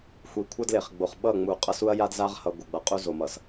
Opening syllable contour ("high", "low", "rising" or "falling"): low